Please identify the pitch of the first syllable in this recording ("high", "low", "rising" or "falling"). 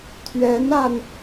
rising